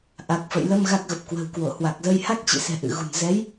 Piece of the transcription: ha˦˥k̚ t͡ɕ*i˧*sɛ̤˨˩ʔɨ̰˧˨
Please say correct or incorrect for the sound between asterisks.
incorrect